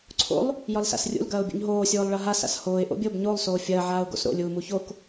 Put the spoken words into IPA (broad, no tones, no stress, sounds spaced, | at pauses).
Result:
ǀʰ o̰ lˠ | j ɒ l s a̰ s rʲ ṵ l ɡ ɐː ʊ̯ bʲ ṵ ɲ ɦ oː sʲ oː lˠ ɭ ɐ ɦ a s a̰ s h oː ɪ̯ ʔ o̰ bʲ o b ɲ o lˠ s oː fʲ ɐː ʕ aː ʊ̯ ɡ o̰ s ɾ o̰ lʲ uː m u ç o k